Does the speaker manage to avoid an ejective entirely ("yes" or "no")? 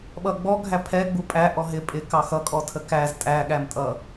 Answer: no